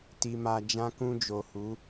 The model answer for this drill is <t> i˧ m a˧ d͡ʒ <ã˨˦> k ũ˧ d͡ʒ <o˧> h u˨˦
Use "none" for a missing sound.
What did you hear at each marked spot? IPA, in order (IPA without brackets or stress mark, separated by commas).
t, ã˧, o˨